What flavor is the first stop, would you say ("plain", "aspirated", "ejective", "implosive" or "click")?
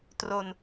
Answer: plain